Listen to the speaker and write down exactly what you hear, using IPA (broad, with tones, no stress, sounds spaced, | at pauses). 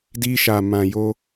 d i˧ ʃ a˨ m ã˨ j o˧